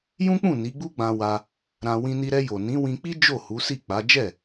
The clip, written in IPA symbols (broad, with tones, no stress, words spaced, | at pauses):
jũ˦k͡pũ˦˨ ni˨˦ɡ͡bu˦ɡ͡bã˧ wa˧ | ɾã˧ wĩ˧ni˧ ɾɛ˧jo˨ nĩ˨˦wĩ˧k͡pi˦ d͡ʒo˦˨hu˨˦si˦˨ k͡pa˨˦ d͡ʒɛ˦˨